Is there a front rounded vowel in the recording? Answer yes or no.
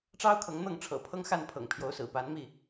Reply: no